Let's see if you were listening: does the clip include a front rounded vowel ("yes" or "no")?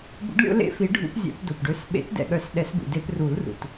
yes